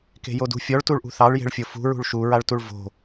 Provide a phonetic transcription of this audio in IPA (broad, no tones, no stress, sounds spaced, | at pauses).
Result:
k e̤ j o d ṳ fʲ ɔ ɭ t u ɭ ʔ ṳ θ ɑ ɭ j e̤ ɭ fʲ o f ṳ ɹ ṳ ɭ ʃ u ɹ a ɭ t u ɭ v o̤